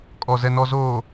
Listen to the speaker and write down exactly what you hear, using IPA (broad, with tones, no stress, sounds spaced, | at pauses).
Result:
kʼ ɔ˨ z ɛ˨ n ɔ˨ z oː˨